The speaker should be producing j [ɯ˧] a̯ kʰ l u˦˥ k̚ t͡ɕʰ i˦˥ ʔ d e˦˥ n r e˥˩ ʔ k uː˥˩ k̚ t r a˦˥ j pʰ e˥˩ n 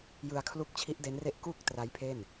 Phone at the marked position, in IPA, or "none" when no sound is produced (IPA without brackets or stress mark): ɯ˧